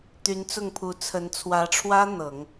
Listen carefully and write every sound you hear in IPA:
t̪y˧˥nt͡sʊ˥˩ŋpʰu˧˥ t͡sʰə˧˥n t͡sʰwä˧˥ʈ͡ʂʰwä˥ n̪ɤ˨˩˦ŋ

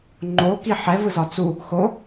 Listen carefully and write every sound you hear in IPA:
ŋ͡ǃo kiħɛ vɯzɒt͡su | xo

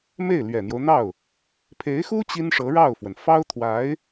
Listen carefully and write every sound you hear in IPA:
me˥˩ɪ̯lɥɛ˨˩n̪jo˦ʊ̯n̪ɑ˥˩ʊ̯ | pʰe˧˥ɪ̯xu˥ t͡ɕi˥nʂɤ˧˥ɻɑ˥˩ʊ̯fwə˩n fɑ˥ʊ̯t̪ʰwa˧˥ɪ̯

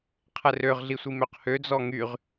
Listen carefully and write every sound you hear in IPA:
qʰɛrøʁ ɮisʷimøqhø d͡zɔŋyʁ

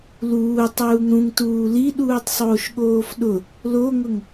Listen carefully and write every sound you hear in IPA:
luː tˤuːŋɾũŋ tuːli ɗuːtˤsˤoːʃɠoːfɗʊ | loŋʊŋ

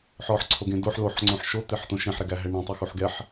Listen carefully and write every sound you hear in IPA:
ħɔħǀʰoɡẽ doħ loħŋ͡ǀõħ ʃot̪eħt̪õ ʃẽħɾɛɡæɦɛ ɳɛ̃tˤuxuħ ɡɛħ

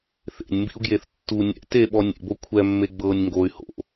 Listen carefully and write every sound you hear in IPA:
θḛnʲmbḭu̯ɡjeθ tːu nʲɛ̰ teɓɔ nʲḛbo kʷʰɛmːe ɡ͡bɤnʲ ŋɡoy̯ ho̰

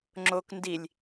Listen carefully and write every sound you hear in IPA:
ŋ͡ǁok ndilʲ

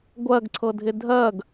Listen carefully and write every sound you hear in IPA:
ɡʷɜɡǀʰɤdʱɪ dʱɜɡ

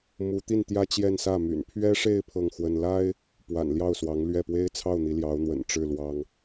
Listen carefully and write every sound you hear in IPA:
mu˧˥t̪i˥˩n t̪jä˥t͡ɕjɛ˥˧nsä˥˩my̰˨˩n pʰɥɛ˥ʂe˥˧ɪ̯ pʰɤ˥˩ŋxwə˥n la˥ɪ̯ | pwa̰˨˩n ljɑ˥˩ʊ̯swɑ˧˥ŋlɥɛ˥˩ pwe˥ɪ̯t͡sʰɑ˥˩ʊ̯ n̪i˧˥ljɑ˧˥ʊ̯n̪wə̰˨˩n ʈ͡ʂɻ̩˥˩lwɑ˥ŋ

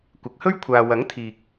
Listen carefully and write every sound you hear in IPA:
kʷɪ˨˥k̚hɵ˥ɥ kʷʰaː˧ wɐ˨˥ŋ t̪ʰiː˨k̚

